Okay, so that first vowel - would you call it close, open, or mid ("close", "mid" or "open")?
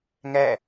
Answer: open